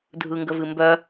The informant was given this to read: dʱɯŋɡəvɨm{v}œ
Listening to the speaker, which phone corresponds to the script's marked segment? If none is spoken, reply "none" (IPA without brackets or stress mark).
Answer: b